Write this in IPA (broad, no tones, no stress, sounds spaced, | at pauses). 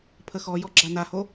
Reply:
pʰ ə x ɔ j ɔ ɡ͡ǁ a n a h o